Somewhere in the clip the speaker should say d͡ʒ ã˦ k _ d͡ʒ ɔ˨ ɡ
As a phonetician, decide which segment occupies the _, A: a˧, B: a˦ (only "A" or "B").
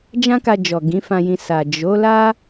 A